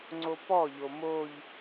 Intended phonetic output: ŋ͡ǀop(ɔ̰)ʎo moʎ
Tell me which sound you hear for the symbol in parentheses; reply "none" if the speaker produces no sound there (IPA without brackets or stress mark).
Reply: ɔ